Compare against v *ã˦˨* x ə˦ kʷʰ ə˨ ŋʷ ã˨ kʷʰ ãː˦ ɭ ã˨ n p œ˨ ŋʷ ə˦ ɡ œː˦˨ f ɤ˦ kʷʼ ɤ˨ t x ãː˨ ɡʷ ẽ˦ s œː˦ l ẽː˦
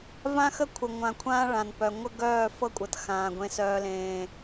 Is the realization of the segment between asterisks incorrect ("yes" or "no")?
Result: yes